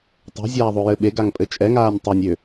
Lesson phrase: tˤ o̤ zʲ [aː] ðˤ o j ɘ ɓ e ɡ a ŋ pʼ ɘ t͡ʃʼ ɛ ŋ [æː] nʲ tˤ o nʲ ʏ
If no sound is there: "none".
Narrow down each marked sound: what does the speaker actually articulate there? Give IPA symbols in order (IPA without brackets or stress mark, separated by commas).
aː, aː